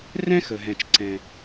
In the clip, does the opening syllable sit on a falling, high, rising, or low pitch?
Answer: high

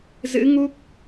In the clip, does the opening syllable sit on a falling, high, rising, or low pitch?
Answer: rising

